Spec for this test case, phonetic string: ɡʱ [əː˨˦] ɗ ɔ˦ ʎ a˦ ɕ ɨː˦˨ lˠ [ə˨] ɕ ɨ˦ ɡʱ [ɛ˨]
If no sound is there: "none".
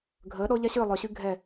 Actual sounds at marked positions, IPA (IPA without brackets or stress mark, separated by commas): əː˨˦, œ˨, ɛ˦˨